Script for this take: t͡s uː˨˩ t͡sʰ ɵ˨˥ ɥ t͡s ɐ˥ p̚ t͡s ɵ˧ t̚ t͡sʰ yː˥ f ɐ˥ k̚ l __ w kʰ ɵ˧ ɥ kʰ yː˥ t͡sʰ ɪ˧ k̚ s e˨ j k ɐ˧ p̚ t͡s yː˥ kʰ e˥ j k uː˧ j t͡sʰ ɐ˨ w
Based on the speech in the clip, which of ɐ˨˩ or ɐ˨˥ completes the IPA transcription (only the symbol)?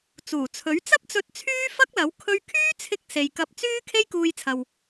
ɐ˨˥